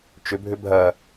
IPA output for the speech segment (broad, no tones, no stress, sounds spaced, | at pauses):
t͡ʃ ʏ bʱ ʏ bʱ ɐ